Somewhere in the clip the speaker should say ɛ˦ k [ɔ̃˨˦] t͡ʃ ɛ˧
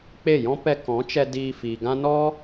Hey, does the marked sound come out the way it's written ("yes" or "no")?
yes